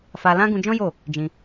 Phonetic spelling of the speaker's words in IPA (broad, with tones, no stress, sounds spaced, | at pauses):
f a˧ l ã˦ ɡ ũ˧ d͡ʒ ɔ̃˦ j o˦˨ | d͡ʒ ĩ˧